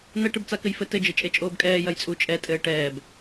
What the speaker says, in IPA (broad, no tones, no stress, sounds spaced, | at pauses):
n̪ ɛ ʈ ɨ b t͡s a k ɘ j f ɘ t ɘ d͡ʒ ɘ t͡ʃʼ e t͡ʃʼ oː b kʼ ɛː j ɐ j t͡sʼ u t͡ʃʼ ɛ tʼ ɘː ʈ ɛː b